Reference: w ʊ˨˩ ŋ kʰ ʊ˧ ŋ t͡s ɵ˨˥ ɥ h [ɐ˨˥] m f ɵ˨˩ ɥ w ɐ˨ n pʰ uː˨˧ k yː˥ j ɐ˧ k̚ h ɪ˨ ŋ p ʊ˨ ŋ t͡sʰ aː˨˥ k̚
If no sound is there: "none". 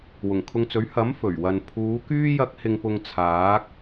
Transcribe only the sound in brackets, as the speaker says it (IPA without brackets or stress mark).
ɐ˨˥